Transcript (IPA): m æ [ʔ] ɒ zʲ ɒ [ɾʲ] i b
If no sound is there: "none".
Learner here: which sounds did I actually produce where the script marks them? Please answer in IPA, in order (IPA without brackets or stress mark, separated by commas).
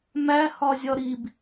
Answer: h, ɾ